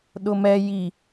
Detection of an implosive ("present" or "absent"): present